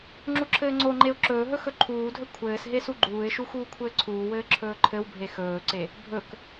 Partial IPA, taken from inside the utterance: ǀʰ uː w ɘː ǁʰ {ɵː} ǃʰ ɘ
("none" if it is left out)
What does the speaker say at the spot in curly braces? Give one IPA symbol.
ɵː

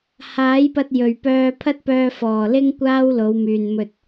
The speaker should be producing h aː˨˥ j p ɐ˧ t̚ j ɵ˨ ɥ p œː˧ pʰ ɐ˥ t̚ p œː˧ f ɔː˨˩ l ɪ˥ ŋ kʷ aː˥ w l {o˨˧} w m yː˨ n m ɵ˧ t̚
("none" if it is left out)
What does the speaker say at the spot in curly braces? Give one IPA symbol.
o˨˧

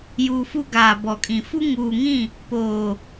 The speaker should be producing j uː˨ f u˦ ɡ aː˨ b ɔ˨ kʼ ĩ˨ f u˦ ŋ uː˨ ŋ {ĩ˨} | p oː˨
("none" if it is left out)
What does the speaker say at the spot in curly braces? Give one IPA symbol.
ĩ˦˨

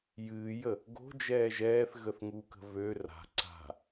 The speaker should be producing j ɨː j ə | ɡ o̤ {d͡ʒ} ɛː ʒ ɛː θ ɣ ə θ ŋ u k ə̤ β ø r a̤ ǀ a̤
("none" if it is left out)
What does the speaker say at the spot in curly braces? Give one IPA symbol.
d͡ʒ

